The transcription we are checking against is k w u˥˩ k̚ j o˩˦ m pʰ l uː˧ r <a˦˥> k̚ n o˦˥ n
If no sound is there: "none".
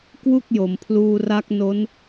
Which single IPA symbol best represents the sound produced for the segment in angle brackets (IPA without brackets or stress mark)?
a˦˥